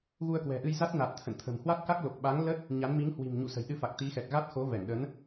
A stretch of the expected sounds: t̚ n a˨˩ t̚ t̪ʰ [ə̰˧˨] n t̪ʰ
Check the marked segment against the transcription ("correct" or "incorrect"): correct